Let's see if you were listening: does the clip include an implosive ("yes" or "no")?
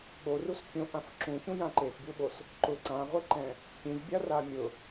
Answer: yes